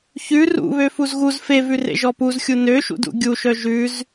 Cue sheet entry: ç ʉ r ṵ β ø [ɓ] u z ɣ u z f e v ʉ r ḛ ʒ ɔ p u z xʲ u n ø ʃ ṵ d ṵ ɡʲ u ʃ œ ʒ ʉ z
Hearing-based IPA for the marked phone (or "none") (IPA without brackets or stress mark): f